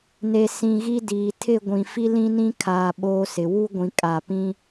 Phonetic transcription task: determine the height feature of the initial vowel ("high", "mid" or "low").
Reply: mid